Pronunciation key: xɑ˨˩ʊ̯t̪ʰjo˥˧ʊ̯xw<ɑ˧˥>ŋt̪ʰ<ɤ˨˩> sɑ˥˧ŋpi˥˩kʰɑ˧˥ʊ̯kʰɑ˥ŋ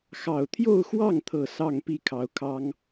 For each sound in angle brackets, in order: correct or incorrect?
incorrect, correct

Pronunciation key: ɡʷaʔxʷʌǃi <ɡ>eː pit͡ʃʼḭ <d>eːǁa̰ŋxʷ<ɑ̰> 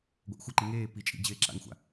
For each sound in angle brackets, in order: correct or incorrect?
incorrect, incorrect, incorrect

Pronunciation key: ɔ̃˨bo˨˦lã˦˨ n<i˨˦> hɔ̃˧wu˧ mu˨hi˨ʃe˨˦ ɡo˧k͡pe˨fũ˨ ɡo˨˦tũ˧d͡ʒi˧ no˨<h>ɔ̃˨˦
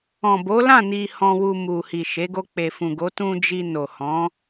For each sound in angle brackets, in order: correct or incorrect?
incorrect, correct

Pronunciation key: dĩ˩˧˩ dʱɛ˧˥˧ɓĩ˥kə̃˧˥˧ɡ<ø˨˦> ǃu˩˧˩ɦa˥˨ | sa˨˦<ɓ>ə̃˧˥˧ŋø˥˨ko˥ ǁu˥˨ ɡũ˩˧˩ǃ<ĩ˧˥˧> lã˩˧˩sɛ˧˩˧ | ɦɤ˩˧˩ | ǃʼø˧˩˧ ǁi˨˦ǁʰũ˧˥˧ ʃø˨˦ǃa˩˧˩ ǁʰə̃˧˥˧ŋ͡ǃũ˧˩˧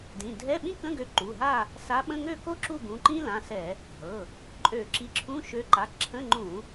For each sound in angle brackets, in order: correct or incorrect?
correct, correct, incorrect

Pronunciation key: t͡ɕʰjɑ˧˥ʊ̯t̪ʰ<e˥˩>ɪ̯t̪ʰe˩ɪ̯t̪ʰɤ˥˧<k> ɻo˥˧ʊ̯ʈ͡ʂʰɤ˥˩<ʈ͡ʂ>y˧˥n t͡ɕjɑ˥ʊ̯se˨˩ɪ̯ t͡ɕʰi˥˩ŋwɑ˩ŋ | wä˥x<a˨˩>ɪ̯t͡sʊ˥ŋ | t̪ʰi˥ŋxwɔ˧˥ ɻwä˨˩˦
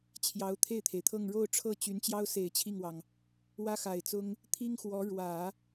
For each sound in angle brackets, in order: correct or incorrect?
correct, incorrect, incorrect, correct

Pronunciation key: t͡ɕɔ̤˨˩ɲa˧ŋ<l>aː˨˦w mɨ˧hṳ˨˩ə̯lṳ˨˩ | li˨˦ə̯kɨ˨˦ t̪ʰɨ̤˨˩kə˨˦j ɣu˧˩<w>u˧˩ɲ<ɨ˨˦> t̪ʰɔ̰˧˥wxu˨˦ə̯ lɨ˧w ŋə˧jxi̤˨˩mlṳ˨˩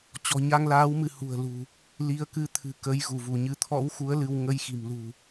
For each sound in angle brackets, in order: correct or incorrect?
correct, incorrect, correct

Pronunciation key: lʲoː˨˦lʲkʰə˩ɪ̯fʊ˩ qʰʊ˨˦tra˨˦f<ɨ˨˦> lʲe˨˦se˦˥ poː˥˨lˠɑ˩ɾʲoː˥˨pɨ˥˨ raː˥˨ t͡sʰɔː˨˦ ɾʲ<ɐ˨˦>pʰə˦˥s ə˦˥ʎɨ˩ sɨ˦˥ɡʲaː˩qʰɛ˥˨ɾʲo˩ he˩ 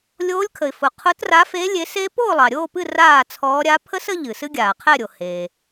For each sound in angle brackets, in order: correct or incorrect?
incorrect, incorrect

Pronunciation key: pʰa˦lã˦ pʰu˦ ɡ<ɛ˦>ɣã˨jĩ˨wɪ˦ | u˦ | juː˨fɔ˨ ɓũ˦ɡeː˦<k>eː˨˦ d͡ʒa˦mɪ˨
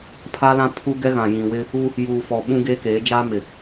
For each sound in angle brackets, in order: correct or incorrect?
correct, correct

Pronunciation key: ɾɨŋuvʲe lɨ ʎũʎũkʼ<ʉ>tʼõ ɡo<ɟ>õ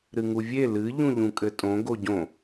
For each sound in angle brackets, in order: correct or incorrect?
incorrect, correct

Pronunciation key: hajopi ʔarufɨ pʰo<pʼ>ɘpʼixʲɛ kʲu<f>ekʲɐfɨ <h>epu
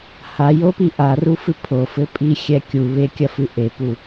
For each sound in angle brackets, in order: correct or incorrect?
incorrect, incorrect, incorrect

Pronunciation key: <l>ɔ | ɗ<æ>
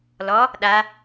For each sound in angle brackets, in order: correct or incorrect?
correct, incorrect

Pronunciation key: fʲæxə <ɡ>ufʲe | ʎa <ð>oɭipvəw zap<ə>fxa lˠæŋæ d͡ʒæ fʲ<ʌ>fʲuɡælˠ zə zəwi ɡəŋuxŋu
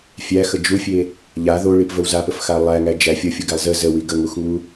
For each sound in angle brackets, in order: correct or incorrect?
incorrect, correct, correct, correct

